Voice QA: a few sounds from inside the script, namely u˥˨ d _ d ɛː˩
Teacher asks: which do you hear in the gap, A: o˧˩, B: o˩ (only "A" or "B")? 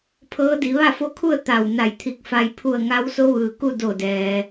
A